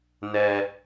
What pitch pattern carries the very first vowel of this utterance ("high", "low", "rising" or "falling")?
low